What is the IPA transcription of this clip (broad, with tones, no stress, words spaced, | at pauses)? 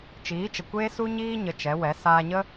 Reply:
t͡ʃiː˨˦t͡ʃə˨ kʷeː˦su˦ɲiː˦ ɲə˧t͡ʃɛ˨˦wɛ˨˦ saː˧ɲə˦